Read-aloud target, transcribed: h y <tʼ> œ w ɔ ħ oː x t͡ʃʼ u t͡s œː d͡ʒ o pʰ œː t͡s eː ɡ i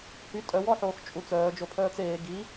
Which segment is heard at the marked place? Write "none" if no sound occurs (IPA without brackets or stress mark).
tʼ